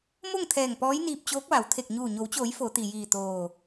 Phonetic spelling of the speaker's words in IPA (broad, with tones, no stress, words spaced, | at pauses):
mo˥˨ŋt̪ʰɛː˧˩ŋ pɔː˧˥jniː˧p̚t͡ɕoː˧˥k̚ʋa˩w t̪ʰe˧˩k̚ɲuː˧˩ ɲo˩˧wt͡ɕoː˩˧j fo˩˧t̪i˩jiː˧˩ t̪oː˧˩